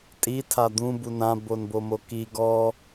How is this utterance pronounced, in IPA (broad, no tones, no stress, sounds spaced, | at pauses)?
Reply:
tʼ i tʰ a d̪ ũ b u n ã b o n b o m o k i ɡ ɔ